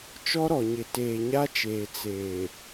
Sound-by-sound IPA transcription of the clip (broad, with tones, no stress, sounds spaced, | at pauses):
t͡ʃ ɔ˦ ɾ ɔ˨ ɲ ɪ˨ t eː˨ ɲ a˦ t͡ʃ eː˨ t͡s eː˨